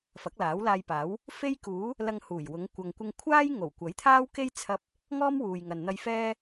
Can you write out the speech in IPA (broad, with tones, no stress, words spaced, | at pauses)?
fɐ˨˥k̚laː˨˥wlaː˧jpaː˨˥w | fe˥jkuː˨˥ | lɐ˧ŋhuː˨˩jwʊ˨˧ŋ kʷɐ˨ŋkʷɪ˧ŋkʷʰaː˥j ŋo˨˩w kʷɐ˨˥jt̪ʰaː˥wke˥jt͡sʰɐ˧p̚ | ŋɔː˥mwuː˨jŋɐ˨nn̪ɐ˧j fɛː˥